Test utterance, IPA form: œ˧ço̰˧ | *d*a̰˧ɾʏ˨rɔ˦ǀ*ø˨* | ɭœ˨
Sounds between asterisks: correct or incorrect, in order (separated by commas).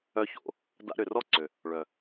correct, correct